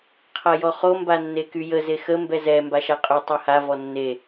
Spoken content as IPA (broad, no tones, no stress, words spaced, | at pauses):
qʰajɔχo mbanːekyjə zexə mbɛzɛ mbaʃaqʼy tˤɛha vɔnːe